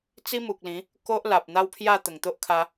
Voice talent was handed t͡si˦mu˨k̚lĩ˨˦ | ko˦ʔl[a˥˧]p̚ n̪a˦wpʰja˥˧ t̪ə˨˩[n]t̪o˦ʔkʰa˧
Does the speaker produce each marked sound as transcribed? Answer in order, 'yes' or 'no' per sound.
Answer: no, no

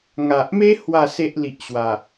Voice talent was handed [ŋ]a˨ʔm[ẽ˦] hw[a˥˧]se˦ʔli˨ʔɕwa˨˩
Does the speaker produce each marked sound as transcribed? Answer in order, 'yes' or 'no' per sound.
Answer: yes, no, yes

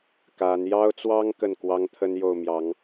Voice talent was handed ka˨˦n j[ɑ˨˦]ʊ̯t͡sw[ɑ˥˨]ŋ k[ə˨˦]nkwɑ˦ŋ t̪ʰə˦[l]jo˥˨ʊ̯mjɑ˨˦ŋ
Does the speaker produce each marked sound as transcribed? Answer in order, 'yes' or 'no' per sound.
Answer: no, no, no, no

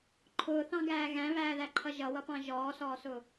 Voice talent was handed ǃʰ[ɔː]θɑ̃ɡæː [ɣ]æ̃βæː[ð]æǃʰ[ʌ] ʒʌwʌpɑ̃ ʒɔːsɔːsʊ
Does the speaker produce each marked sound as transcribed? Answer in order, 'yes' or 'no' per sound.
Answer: no, yes, yes, yes

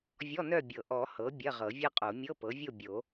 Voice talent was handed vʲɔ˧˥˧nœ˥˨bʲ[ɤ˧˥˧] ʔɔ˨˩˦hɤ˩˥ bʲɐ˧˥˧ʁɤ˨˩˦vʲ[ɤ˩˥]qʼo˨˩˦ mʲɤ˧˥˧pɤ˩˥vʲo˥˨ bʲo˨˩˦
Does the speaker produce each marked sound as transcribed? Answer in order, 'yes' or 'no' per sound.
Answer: no, no

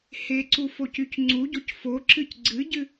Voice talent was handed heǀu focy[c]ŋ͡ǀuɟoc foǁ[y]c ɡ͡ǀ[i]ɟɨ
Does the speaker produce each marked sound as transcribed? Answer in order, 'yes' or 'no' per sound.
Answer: yes, no, no

